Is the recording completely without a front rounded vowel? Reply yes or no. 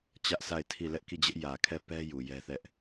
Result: yes